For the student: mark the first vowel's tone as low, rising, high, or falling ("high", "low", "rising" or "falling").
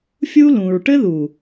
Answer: high